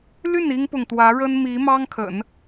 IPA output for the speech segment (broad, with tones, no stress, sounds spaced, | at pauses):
l y˥˩ n i˥ ŋ p ʊ˨ ŋ t̪ w ä˧˥ ɻ ə˥ n m i˧˥ m ɑ˥ ŋ kʰ ə̰˨˩˦ n